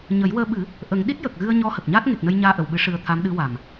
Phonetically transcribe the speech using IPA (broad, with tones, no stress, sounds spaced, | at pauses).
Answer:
ɲ ə˨˩˦ j w əː˧ ɓ ɨ˨˩˦ | ʔ ə˨˩˦ ŋ ɗ i˦˥ t̚ j ə˨˩ k̚ ɣ ɨ˧ ə̯ ɲ ɔ˧˥ h ə˨˩ k̚ ɲ aː˦˥ t̚ ŋ e˨˩ k̚ n ə˧ j ɲ aː˧ ʔ ə˨˩˨ w ɓ ɨ˨˩˦ ʂ ɨ˧ ə̯ t̪ʰ a˧˥ m ɗ ɨ˧˥ w a˨˩ m